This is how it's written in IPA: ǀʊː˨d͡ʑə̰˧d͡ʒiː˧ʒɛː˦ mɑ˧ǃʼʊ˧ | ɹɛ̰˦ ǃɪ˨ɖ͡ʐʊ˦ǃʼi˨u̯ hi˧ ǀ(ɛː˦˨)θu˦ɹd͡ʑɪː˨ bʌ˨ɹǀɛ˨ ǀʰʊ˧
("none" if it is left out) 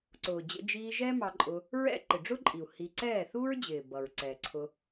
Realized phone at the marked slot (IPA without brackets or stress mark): ɛː˦˨